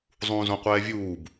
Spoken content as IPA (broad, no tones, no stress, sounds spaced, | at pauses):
zˤ ũː z õ qʷ ɛː vʲ uː b